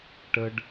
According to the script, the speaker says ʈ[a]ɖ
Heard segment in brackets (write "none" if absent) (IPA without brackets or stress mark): ə